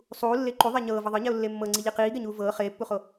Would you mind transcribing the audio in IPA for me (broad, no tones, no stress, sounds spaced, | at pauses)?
sˤ uː lː e ǃ u ðˤ ɛ ɲ ɤː v ɤ ðˤ ɤ ɲ ɛ ʊ̯ lː e mː ɤ ŋ͡ǀ i ʎ i q iː ɡ ɛ ɲ uː v ɤː χ eː pː u χ o